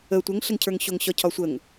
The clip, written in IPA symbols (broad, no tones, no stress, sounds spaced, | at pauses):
ə tʷ ə ŋ ɬ ə ŋ cʰ ə˞ ŋ ɕ o ŋ ɕ ɒ cʰ ɒ sʷ ə ŋ